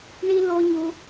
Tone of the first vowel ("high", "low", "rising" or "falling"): high